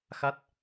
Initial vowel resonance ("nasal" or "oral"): oral